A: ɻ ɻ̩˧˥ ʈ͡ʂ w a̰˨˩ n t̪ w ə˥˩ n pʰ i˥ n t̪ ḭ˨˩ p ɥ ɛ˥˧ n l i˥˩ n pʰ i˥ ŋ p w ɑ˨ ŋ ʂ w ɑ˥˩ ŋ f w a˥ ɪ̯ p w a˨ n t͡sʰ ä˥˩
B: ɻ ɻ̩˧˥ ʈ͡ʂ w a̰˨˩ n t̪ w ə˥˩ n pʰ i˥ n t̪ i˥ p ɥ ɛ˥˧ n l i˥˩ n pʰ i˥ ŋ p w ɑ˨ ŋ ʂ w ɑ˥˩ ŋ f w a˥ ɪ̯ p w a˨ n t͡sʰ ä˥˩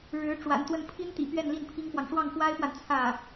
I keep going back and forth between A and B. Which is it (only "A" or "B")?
A